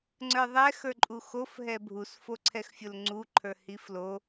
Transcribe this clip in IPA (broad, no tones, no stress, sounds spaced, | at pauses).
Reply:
ŋ͡ǀ ə˞ ðˤ ɛ x ə˞ ǃʼ u x o f ɦ ɛ bʱ u s f o ǀʰ ɛ x fʲ o l ŋ͡ǀ u ǃʰ ə˞ h i f l o